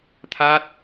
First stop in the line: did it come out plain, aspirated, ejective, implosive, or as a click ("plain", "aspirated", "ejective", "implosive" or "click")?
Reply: aspirated